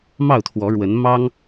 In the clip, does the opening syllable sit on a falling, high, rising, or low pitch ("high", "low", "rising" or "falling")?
falling